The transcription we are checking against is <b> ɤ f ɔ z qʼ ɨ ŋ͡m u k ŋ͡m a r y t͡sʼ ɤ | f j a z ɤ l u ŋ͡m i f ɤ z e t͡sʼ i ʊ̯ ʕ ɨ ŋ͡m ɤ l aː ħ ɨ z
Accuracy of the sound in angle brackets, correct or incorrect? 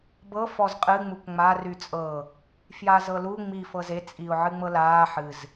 correct